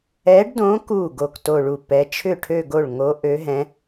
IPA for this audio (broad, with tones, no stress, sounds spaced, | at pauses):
ɛ˧˥ ɖ d õ˧˥ k u˥˩ ɡ o˥˩ k t o˥˧ ɭ u˥˩ p ɛ˧˥ t͡ʃʰ ʏ˥˩ ʈʰ ø˥˧ ɡ o˥˩ ɭ ŋ o˧˥ ʔ ø˧˥ ɦ ɛ̃˧˥